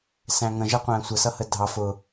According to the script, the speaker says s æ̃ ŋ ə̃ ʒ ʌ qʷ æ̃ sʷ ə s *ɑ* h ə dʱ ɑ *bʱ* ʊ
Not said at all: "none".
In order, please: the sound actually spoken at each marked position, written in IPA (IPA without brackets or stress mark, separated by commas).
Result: ʌ, f